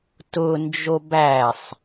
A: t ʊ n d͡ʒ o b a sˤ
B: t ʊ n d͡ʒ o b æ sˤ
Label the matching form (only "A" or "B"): B